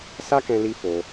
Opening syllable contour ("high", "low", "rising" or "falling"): high